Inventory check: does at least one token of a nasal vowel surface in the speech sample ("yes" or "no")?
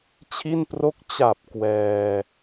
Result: no